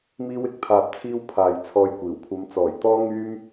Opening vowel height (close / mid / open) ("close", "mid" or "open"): close